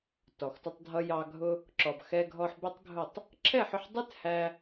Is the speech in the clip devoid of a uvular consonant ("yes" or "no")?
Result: yes